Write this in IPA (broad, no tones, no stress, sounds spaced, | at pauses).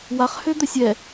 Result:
w a χ h ø d̪ œ sʲ ɛ